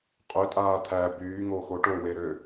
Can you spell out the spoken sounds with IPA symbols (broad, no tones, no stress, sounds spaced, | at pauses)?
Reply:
qʼ ø tʼ aː t̪ʰ æ b yː ŋ o x o ʈ o w e ɾ ø